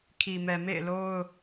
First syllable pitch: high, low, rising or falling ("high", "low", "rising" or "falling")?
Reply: low